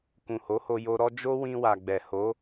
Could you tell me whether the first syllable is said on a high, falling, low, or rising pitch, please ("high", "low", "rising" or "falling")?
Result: low